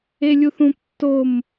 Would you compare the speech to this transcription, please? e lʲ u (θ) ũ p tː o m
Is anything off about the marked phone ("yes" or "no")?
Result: no